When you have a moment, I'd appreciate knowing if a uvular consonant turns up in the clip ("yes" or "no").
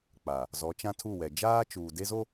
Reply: no